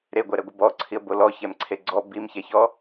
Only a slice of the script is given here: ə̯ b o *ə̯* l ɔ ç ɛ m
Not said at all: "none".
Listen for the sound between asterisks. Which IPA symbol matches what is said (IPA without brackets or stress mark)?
none